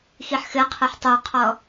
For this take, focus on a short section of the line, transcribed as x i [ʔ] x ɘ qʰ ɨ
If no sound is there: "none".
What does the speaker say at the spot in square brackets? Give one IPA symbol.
ħ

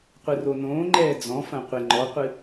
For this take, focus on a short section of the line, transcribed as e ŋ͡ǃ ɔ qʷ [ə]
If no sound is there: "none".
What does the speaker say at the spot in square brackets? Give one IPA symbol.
ɨ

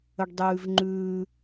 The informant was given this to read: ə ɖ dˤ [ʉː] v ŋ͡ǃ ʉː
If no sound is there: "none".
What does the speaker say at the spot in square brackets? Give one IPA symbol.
ʉː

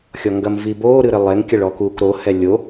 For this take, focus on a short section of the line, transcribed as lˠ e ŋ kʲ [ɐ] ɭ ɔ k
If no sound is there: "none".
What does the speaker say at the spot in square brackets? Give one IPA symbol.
ɐ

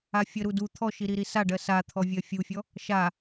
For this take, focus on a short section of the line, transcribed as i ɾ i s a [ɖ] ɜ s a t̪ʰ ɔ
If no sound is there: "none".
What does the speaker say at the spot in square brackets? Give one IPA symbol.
ɖ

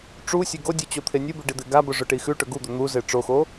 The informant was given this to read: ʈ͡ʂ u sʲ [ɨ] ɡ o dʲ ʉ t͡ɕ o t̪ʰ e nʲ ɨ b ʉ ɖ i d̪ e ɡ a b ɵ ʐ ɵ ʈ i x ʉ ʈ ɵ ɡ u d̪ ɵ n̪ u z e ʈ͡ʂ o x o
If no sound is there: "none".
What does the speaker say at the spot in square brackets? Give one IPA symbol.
e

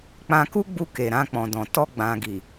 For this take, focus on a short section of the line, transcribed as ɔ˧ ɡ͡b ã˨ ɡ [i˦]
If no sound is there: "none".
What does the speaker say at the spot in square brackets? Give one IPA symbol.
i˨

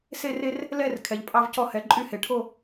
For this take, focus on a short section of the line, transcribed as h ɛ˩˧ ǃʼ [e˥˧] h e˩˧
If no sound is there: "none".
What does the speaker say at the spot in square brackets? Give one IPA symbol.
y˥˧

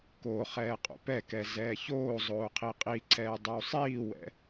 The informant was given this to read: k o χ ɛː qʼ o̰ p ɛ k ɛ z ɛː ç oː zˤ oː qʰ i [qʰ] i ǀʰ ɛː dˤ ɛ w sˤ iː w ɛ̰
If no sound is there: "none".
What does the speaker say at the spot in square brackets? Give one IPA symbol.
qʼ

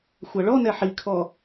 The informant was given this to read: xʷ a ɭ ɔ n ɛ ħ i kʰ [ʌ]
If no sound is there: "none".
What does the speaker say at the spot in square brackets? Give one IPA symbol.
ɔ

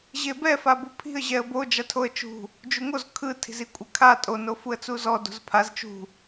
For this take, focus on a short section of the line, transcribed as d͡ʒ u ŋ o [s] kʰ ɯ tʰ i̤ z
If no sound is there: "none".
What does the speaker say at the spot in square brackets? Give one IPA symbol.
z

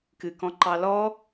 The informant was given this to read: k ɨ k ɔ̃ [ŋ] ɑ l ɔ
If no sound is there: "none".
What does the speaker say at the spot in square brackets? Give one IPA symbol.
ǃ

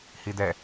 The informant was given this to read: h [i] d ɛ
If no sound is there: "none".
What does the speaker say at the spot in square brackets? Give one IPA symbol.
i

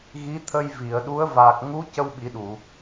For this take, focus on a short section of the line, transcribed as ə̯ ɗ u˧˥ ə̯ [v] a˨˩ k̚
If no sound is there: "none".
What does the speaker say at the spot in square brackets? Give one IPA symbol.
v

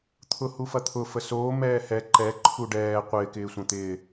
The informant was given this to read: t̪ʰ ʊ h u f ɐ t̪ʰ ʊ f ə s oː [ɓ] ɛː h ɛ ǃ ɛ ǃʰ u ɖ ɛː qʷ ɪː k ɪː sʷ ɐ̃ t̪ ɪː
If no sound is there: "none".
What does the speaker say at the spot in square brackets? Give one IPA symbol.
m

